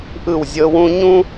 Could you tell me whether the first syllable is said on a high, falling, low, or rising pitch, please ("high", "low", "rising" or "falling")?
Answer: falling